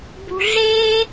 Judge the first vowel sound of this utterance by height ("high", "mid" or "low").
high